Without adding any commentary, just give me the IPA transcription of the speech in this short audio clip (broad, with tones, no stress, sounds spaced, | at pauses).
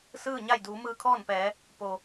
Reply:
s ɯː˥˨ ɲ a˥˨ j d uː˩˧ m ɯː˧ kʰ ɔː˥˨ n p ɛː˩˧ | p o˩